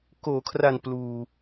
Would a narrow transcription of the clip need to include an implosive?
no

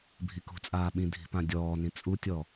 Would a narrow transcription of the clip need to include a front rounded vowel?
no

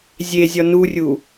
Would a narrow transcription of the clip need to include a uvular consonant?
no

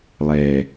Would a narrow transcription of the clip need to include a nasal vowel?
no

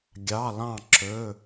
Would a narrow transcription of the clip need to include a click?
yes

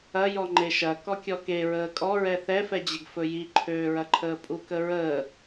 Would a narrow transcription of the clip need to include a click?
yes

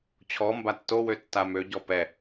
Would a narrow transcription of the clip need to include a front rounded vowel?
yes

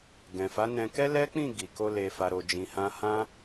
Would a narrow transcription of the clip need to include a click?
no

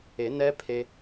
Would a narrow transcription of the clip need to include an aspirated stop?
yes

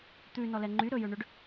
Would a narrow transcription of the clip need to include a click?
yes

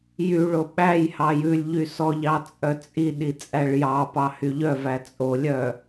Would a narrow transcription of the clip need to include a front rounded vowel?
yes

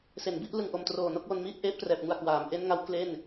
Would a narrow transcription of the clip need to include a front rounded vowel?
no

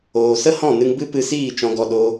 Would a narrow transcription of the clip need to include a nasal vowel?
yes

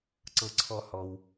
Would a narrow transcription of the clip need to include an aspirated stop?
yes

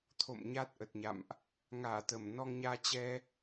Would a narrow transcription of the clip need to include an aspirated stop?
yes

